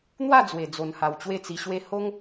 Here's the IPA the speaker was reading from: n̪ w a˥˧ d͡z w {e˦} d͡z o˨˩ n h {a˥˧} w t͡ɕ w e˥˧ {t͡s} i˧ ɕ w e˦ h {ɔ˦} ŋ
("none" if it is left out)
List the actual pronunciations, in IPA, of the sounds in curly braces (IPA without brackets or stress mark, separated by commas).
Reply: e˨˩, a˨˩, t͡s, o˦